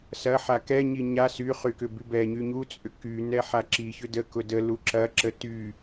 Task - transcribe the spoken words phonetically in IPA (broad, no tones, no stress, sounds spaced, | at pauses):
s ɐ ħ a k ɛ ɲ i ɲ a s y χ y k ʏ b y b ɛ ɲ y ɲ u t͡sʼ ʏ k y n ɛ ħ a ǁ i ç ʏ d ə k ʊ d ə l u ǁ ɐ ǁ ə t y